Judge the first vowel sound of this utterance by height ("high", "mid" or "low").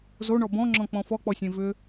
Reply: mid